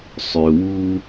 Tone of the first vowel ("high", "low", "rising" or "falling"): low